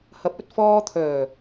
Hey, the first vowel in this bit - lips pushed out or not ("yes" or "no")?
no